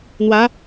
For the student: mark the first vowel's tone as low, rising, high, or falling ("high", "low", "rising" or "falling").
rising